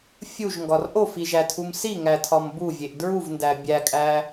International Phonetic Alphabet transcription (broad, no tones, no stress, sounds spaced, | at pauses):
fʲ u ʒ ŋ ɡ ɒ r ʔ o f i ʒ æ tʰ u m s i ŋ æ tʰ ɒ m b u vʲ e ʔ d ɹ u v n d æ bʲ æ kʼ æ